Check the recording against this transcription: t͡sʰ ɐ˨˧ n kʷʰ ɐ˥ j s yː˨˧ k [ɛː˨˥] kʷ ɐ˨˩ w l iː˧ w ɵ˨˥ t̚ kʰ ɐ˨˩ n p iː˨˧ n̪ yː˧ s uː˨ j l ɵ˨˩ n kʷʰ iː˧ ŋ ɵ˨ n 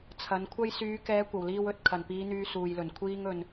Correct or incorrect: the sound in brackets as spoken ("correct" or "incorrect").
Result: incorrect